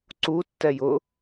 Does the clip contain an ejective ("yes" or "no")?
no